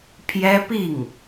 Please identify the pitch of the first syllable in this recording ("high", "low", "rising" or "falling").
high